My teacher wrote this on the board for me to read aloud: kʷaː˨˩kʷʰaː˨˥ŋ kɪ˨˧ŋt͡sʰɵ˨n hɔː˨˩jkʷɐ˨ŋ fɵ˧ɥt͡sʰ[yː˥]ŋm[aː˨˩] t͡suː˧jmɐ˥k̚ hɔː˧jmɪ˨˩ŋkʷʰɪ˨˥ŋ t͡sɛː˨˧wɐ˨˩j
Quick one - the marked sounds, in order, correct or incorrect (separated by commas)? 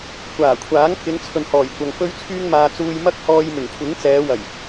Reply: incorrect, incorrect